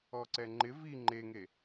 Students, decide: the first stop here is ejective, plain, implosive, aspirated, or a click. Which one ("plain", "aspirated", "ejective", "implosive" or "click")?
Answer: click